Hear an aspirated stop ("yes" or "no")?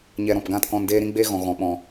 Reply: no